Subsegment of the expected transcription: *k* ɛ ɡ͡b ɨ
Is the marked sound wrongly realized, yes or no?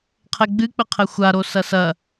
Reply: yes